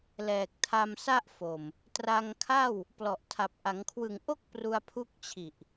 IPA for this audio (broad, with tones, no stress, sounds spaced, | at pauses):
l ɛː˨˩ k̚ tʰ a˧ m s a˥˩ ʔ f o˨˩ m | t r a˧ ŋ kʰ a˥˩ w | p l ɔ˨˩ ʔ tʰ a˨˩ p̚ ʔ a˩˦ ŋ kʰ w ɯ˨˩ ŋ ʔ o˥˩ k̚ p r u˧ a̯ pʰ u˦˥ k̚ t͡ɕʰ i˨˩ ʔ